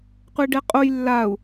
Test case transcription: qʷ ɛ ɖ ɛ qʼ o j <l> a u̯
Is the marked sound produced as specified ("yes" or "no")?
no